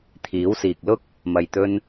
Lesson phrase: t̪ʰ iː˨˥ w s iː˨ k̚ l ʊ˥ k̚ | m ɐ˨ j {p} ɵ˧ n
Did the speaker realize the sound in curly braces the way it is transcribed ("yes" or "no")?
no